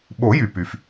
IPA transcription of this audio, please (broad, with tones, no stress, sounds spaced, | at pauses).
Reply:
ɓ o˨˩˦ j y˩ p y˩ f